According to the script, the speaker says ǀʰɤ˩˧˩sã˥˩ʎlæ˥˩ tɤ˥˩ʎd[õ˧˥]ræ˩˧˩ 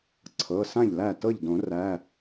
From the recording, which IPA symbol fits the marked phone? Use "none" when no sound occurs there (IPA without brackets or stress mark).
õ˨˩˦